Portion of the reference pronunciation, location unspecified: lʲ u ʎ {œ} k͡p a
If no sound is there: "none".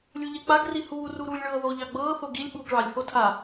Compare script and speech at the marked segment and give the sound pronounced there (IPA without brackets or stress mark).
ɛ